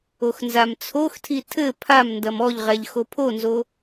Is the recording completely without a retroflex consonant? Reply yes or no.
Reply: yes